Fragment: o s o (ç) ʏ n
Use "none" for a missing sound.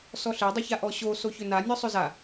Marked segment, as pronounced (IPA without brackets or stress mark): ç